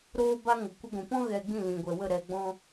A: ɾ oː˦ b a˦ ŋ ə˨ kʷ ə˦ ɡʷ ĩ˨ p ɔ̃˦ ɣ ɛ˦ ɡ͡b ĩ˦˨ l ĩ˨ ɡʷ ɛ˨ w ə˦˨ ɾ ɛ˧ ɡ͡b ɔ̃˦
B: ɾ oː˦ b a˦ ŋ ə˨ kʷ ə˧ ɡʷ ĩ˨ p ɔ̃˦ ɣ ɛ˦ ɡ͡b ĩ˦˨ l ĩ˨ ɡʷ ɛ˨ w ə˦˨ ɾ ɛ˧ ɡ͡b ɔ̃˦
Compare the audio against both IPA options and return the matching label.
B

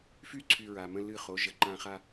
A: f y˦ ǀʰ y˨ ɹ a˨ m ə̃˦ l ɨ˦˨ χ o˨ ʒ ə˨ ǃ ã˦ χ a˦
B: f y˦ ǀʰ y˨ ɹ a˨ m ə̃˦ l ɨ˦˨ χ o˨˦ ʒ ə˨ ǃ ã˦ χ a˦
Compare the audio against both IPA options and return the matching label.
B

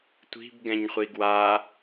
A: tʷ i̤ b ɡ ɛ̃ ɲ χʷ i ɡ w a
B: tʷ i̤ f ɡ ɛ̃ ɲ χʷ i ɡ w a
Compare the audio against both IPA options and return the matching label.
A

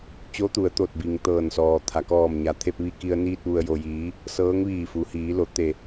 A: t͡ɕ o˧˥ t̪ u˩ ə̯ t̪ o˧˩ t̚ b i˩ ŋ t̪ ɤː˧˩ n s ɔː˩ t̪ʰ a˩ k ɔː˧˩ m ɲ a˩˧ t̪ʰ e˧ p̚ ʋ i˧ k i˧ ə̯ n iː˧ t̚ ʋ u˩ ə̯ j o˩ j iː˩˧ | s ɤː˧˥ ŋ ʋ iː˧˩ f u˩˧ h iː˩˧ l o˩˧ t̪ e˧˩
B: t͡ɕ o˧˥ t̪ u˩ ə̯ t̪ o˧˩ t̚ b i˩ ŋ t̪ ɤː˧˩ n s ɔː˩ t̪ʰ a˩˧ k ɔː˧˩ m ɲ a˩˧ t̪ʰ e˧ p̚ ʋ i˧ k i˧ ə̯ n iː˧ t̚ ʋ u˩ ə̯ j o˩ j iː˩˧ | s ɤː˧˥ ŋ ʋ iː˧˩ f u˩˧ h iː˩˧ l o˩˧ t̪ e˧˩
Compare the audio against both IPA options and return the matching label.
A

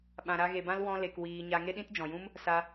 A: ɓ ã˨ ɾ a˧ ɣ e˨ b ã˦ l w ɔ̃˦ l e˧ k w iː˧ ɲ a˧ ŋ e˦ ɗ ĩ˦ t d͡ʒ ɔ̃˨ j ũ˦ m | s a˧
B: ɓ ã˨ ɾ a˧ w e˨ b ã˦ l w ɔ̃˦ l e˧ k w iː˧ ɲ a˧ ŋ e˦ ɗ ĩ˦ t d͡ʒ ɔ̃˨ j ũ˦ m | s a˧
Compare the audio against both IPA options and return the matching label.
A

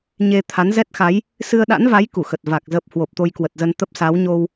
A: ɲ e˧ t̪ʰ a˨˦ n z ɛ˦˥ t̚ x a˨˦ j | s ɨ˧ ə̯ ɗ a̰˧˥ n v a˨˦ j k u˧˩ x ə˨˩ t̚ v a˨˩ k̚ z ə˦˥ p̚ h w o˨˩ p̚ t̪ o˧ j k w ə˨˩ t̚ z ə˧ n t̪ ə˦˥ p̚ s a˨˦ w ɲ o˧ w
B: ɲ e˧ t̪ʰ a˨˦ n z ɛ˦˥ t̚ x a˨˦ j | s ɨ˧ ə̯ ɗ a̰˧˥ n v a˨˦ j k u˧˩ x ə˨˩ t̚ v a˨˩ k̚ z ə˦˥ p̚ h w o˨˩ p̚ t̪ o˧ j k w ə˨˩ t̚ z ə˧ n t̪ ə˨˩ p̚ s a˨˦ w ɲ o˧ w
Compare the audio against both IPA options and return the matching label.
A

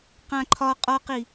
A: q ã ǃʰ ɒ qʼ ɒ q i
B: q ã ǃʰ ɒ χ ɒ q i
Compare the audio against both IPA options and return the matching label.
A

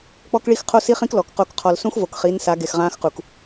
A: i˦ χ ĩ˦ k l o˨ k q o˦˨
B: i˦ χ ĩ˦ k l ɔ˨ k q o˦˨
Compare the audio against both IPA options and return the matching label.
B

